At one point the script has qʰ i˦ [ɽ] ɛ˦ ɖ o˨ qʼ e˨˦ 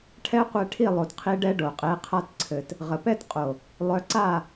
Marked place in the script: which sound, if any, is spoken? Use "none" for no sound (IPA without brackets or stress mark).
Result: ɖ